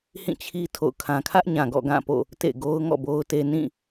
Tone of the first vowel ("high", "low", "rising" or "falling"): falling